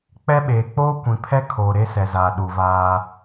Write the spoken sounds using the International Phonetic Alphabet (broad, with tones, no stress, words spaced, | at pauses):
k͡pɛ˦ɓeː˨ k͡poː˦kʷĩ˨pʰɛ˦ kʰoː˨ɾe˦sɛ˨zaː˨ ɗu˨vaː˦